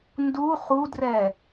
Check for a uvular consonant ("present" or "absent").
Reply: present